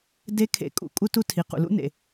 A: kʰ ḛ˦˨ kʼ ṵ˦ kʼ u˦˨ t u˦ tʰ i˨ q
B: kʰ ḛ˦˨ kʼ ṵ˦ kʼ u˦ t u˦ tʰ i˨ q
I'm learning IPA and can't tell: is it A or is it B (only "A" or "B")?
B